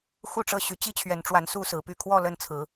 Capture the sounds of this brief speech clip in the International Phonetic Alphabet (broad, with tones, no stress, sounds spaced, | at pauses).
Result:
x u˥˨ ʈ͡ʂ ɤ˥˨ ɕ y˨˦ t͡ɕ i˦ t͡ɕʰ ɥ ɛ˨˦ n ʈ͡ʂ w a˨˦ n s u˦ s ɹ̩˨˦ p y˥˨ kʰ w ɔ˥˨ l ə˥˨ n t͡sʰ ɹ̩˨˦